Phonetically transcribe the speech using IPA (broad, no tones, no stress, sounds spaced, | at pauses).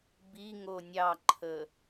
b i ŋ o nʲ ɑ ǃʰ ə